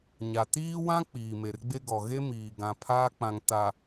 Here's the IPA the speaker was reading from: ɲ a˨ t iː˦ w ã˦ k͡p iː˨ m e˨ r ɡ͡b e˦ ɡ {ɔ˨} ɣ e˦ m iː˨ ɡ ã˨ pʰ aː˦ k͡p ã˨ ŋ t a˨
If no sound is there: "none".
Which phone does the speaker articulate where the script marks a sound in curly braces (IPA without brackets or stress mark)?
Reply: ɔ˨